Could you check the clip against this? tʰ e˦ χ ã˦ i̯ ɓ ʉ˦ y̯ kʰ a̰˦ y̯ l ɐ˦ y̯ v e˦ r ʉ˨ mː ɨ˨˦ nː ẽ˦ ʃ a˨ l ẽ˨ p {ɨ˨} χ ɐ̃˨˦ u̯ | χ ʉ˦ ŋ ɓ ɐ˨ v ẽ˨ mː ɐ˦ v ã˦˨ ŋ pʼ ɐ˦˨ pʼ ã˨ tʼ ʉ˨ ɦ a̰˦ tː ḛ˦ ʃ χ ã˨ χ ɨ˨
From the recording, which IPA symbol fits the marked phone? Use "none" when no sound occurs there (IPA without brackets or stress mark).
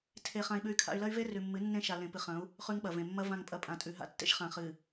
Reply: ɨ˨